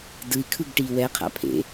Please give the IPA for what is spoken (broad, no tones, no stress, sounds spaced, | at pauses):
d ɯ i̯ kʰ ɯ ɡ ʈ iː w ɛ qʰ a̰ pʰ ḛ